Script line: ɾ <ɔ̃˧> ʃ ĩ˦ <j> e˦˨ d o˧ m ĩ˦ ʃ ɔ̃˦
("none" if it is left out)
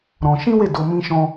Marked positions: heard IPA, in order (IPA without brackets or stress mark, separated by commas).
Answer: ɔ̃˧, w